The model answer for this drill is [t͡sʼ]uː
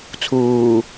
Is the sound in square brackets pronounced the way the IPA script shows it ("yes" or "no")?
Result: no